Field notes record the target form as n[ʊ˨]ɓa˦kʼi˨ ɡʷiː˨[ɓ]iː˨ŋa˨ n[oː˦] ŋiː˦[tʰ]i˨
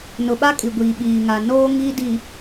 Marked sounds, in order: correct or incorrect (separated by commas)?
correct, correct, correct, incorrect